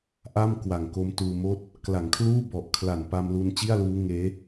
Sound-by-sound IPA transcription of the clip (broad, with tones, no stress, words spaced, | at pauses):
ʔa˥˩mkwa˨˩ŋ ko˦˥mtuː˧moː˥˩t̚ | kla˩˦ŋkʰluː˥˩ bɔ˨˩ʔkʰla˨˩npa˧mlu˧n t͡ɕi˥˩a̯luː˦˥ŋeː˦˥